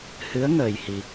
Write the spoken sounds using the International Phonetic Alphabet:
h ɨ˧˥ ə̯ ŋ əː˧ j h i˧

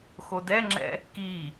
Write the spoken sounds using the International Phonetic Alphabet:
x o d ɛ ŋ͡ǁ ɛ̰ | k i

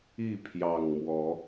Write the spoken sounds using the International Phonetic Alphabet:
i˥˨ pʰ j ɑ˨˩ ŋ m w ɔ˨˦

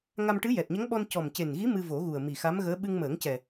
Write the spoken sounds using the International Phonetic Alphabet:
ŋ a˧ m ʈ ɨ˧˥ j ɛ˨˩ t̚ ɲ ə˧˥ ŋ ɓ ɔ˧ n c ɔ˨˩ m c e˨˩ n ɣ i˧˥ m ɨ˧ v o˨˩˦ ɣ u˨˩ ə̯ m i˨˩ x a˧˥ m ɣ əː˧˥ ɓ ɨ˧ ŋ m əː˨˩˦ ŋ c ɛ˨˩

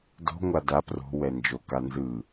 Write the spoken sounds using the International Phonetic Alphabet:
d o̤ ŋʷ a d a p r o̤ w ɛ n d͡ʒ o k a n z ɯ

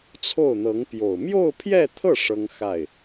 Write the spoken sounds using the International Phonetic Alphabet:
t͡sʰ o˥˩ ʊ̯ n̪ ɤ˧˥ ŋ p j o˨˩ ʊ̯ m j o˥˧ ʊ̯ pʰ j ɛ˥˧ t̪ʰ ɤ˥˩ ʂ ɤ˥ ŋ x a˥˩ ɪ̯

